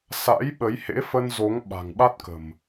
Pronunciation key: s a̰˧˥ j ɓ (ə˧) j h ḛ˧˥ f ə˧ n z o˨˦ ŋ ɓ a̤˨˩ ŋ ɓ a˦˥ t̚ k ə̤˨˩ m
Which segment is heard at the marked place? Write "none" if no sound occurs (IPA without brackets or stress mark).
ə˨˦